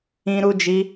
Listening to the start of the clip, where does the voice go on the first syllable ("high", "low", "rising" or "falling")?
high